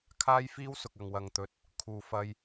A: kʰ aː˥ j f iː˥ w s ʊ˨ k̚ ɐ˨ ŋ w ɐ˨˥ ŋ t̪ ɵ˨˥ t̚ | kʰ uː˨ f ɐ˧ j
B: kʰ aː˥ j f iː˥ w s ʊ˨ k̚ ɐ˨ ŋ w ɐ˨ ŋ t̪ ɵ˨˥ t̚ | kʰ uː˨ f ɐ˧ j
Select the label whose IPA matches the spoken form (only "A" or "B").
B